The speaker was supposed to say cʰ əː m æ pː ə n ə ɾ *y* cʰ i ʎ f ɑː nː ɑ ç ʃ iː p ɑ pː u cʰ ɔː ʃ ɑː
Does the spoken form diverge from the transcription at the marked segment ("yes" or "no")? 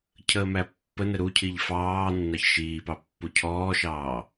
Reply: yes